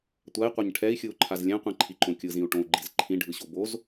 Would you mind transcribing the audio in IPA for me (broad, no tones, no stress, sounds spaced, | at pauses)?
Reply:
tʷ a i̯ qʷ ɛ ɲ ʈʰ ɛ i̯ xʲ ɯ u̯ ǃʰ a z lʲ ɛ̃ qʷ ĩ ǃʰ i ǃ õ kʲ ɯ z ĩ u̯ ʈ õ u̯ ɡ͡ǃ i z ǃʰ ĩ ɖʱ ɯ ɕ o b o z